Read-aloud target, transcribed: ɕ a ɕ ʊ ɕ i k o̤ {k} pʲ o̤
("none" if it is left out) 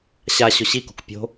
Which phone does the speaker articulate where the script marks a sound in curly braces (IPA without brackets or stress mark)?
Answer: k